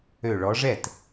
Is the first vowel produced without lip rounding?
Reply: no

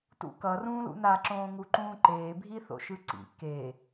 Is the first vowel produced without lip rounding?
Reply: no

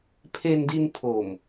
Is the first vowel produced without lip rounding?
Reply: yes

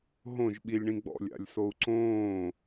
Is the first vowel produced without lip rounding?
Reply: no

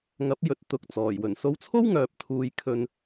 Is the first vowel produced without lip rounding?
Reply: yes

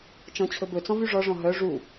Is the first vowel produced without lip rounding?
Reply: no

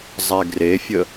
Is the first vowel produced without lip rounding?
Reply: yes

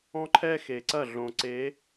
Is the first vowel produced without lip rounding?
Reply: no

